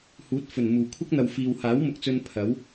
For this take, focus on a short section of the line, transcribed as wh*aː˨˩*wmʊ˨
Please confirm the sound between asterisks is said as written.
no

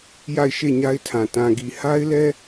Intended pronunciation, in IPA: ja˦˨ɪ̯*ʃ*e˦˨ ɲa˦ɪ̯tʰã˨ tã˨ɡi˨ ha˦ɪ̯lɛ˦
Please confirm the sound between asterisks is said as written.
yes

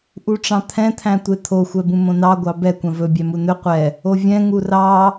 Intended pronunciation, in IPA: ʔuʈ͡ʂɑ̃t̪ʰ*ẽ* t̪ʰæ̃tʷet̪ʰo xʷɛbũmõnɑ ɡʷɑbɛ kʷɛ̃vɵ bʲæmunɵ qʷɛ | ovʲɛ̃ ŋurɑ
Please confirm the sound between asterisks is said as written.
no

